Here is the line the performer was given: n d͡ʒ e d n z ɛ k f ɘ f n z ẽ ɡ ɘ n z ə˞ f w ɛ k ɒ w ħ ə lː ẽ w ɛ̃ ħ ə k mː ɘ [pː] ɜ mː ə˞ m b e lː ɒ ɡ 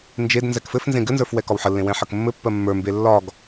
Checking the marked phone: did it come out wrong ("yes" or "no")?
no